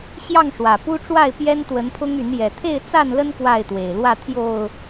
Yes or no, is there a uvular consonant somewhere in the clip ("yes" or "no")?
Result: no